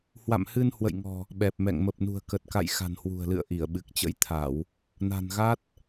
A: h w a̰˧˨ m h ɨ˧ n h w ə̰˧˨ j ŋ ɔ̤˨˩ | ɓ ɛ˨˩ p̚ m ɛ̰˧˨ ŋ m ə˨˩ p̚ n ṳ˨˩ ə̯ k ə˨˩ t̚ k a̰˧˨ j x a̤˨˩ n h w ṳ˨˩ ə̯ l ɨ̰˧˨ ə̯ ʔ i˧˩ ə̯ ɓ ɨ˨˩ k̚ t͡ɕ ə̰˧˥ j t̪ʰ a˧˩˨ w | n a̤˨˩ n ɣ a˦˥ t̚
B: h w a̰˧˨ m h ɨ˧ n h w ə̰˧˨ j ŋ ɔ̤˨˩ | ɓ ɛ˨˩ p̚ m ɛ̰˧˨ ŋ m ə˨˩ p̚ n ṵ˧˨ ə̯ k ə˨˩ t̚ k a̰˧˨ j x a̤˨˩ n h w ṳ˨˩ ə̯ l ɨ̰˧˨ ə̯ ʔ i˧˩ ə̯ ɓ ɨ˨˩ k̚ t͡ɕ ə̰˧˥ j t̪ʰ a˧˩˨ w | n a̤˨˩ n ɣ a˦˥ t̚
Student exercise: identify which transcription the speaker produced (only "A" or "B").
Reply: A